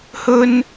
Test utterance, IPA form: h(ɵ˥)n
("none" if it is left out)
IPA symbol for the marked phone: ɵ˥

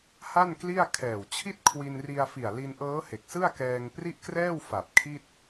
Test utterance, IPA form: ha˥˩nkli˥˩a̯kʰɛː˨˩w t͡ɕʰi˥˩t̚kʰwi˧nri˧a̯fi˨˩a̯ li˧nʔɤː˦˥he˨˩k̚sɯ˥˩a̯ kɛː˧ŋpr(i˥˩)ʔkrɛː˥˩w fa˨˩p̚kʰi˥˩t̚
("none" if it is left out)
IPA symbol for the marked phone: i˥˩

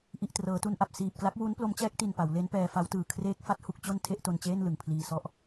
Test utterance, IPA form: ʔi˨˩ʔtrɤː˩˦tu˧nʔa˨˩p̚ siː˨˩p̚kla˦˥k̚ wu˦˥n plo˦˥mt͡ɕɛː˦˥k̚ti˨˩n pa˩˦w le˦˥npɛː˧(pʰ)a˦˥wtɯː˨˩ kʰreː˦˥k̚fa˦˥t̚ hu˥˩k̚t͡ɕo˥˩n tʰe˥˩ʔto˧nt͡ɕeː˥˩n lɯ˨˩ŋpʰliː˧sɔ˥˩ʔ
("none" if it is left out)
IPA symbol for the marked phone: f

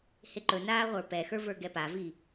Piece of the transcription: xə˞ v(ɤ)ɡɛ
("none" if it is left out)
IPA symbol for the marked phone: ə˞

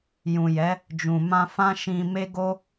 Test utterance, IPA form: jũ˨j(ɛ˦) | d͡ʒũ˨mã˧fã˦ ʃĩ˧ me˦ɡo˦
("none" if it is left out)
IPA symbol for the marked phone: ɛ˨˦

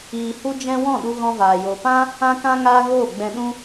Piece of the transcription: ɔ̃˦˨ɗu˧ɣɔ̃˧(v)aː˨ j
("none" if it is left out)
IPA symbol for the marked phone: v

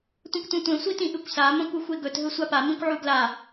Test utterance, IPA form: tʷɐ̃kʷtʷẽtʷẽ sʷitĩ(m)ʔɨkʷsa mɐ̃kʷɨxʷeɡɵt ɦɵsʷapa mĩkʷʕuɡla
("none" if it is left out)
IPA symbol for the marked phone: none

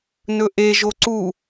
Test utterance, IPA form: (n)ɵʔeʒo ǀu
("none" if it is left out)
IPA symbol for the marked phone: n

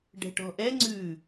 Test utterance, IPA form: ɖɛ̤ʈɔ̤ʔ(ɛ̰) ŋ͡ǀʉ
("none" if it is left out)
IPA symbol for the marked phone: ɛ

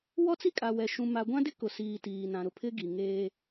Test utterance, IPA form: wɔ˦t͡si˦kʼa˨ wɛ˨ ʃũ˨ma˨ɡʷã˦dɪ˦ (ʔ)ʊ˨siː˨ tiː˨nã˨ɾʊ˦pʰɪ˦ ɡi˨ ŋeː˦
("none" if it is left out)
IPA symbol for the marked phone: k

